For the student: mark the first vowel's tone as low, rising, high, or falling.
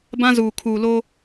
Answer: high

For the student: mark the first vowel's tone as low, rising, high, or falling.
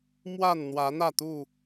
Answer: falling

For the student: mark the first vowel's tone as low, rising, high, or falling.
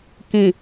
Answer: low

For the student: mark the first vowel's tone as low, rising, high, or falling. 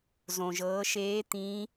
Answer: low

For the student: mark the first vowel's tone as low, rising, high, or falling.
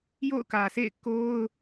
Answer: falling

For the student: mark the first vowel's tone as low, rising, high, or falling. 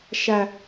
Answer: high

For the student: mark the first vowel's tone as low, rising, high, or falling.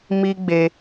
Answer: high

